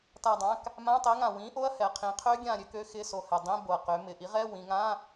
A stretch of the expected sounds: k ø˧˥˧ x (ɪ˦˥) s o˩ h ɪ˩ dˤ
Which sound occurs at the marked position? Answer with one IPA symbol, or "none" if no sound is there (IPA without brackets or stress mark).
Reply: ɪ˧˥˧